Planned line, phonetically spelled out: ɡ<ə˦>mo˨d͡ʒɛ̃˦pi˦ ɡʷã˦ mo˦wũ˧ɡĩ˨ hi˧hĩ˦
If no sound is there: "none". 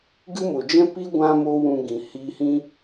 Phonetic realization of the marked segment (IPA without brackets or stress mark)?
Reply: ɨ˦